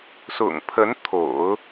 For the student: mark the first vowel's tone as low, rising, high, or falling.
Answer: low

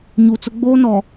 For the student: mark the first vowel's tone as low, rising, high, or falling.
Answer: low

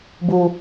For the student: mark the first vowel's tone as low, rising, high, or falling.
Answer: low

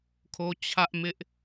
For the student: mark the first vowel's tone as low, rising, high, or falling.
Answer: high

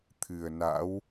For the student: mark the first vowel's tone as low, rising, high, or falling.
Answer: low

